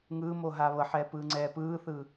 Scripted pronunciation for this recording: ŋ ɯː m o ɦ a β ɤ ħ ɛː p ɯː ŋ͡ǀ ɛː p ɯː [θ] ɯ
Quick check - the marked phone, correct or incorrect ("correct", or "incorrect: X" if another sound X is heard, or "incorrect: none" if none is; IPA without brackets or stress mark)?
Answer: correct